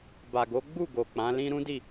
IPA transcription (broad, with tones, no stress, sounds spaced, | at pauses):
b a˨ ɡ o˨˦ ɡ͡b u˦˨ ɡ o˨ k͡p ã˨˦ l ĩ˦ ɾ ũ˦ d i˦˨